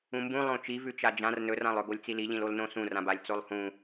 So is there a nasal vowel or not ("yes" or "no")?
yes